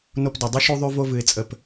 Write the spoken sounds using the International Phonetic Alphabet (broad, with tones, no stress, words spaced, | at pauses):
no˧pdɘ˨dˤɨ˦ ʃu˧ðˤy˧vo˧vɨ˨ɪ̯ t͡sʼə˨p